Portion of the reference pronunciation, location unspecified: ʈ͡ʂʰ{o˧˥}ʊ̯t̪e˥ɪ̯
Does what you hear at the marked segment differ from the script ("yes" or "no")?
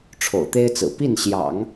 yes